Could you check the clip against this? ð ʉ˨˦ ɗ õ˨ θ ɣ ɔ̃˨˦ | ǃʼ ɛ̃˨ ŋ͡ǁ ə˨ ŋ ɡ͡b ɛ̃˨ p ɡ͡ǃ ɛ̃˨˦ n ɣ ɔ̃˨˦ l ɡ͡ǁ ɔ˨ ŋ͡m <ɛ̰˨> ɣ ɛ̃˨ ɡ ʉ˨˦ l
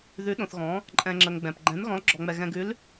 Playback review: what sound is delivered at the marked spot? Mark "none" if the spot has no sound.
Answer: ɛ˨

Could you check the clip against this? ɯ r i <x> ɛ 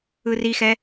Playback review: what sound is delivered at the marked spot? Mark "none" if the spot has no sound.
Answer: x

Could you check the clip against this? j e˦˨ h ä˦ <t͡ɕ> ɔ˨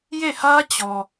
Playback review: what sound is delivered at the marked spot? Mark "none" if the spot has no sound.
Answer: t͡ɕ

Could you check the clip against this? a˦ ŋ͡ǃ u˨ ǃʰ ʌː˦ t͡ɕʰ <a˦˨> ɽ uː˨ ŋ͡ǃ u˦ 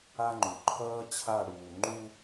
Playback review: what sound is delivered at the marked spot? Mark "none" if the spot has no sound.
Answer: a˦˨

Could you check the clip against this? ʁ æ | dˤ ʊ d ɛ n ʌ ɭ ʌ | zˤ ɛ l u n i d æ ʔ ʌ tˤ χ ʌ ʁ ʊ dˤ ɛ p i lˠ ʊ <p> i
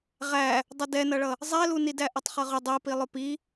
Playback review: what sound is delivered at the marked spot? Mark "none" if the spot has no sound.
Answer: p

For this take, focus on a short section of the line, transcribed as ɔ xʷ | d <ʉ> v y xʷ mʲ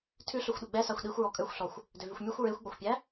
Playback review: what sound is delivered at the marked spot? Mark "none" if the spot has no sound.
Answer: ø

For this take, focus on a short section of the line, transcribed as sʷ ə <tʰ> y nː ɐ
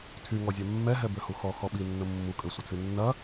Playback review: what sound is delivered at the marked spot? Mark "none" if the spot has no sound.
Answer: tʰ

